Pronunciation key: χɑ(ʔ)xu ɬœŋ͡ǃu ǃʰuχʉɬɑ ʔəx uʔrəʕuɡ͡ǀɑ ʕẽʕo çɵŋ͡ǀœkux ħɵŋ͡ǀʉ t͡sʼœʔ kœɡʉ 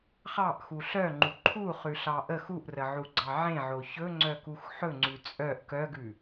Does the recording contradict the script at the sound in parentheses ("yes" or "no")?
no